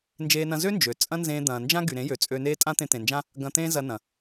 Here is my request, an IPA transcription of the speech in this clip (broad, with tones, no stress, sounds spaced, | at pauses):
n d͡ʒ eː˦ n ɐ̃˦ z ø˦ n d͡ʒ ø˨ t͡sʼ ɐ̃˦ n z ẽː˧ d̪ ɐ̃ː˨ n d͡ʒ ã˦ ɡ y˨ ɾ ẽ˨˦ j ø˨ t͡sʼ ø˧ n eː˦ tʼ ã˦ t̪ ẽ˧ t̪ ẽ˨ n d͡ʒ ã˦ | ɡ ɐ̃˧ t̪ ẽː˦ z ɐ˧ n ɐ̃˨